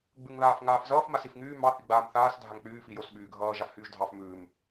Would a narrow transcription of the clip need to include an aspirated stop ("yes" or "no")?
no